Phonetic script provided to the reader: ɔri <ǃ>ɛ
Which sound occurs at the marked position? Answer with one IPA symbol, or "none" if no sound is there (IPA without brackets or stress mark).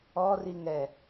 ŋ